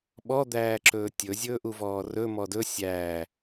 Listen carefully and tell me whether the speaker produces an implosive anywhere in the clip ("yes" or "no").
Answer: yes